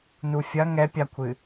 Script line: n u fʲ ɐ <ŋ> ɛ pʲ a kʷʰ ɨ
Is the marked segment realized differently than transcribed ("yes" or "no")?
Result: no